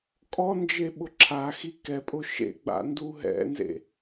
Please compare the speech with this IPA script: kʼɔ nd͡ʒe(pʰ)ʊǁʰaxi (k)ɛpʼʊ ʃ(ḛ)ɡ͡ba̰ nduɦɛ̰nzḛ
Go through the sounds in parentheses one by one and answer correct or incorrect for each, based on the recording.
incorrect: ɓ, correct, correct

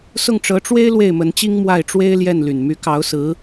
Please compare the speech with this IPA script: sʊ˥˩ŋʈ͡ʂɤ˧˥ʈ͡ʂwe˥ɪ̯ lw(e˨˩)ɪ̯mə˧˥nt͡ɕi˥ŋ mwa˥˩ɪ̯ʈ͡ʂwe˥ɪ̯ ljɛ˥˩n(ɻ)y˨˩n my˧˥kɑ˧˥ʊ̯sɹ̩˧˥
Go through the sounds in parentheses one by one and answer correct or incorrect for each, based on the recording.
incorrect: e˥˩, incorrect: l

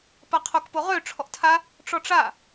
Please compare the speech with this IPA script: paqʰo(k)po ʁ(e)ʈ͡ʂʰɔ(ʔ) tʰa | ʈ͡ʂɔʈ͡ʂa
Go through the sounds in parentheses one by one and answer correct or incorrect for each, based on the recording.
correct, incorrect: ø, correct

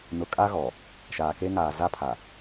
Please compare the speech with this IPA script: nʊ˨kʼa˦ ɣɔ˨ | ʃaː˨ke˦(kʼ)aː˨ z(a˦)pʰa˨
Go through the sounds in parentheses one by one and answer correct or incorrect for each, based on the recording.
incorrect: ŋ, correct

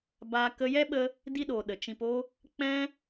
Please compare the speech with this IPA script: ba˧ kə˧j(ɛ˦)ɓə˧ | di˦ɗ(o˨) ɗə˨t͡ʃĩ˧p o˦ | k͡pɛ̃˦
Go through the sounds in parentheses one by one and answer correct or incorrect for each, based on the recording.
correct, correct

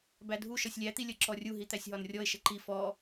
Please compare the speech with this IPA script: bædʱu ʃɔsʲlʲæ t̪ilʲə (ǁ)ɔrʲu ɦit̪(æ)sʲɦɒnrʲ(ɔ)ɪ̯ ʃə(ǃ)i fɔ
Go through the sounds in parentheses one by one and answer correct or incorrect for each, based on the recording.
correct, correct, correct, correct

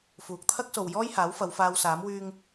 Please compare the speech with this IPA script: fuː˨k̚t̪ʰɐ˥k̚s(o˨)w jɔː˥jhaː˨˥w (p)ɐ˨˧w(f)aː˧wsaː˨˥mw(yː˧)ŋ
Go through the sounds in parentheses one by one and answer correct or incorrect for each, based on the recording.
correct, incorrect: f, correct, correct

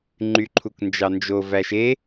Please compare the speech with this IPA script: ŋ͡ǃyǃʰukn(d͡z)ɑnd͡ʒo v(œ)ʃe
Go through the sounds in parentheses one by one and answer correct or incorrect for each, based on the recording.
incorrect: d͡ʒ, incorrect: æ

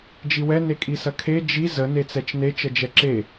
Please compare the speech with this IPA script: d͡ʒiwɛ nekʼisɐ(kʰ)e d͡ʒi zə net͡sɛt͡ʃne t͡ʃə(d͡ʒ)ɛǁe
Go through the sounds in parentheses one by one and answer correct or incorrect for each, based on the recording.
correct, correct

